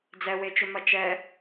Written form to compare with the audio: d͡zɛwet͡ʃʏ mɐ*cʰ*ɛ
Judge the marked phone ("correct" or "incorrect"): incorrect